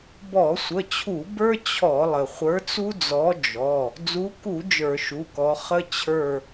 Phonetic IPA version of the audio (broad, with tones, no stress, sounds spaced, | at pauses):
b ɔ˧˩˧ sʷ ə˩˧˩ t͡ɕʰ u˧˩˧ b ə˞˦ t͡ɕʰ ɔ˧˩˧ lˠ ə˩ χʷ ə˞˨˦ t͡s u˦ d͡z ɔ˨˦ d͡ʒ ɔ˩˧˩ | d͡z u˨˦ k u˧˩˧ d͡ʒ ə˞˧˩˧ ʃ u˩˧˩ k ɔ˨˦ χ ə˦ t͡ɕʰ ə˞˦˨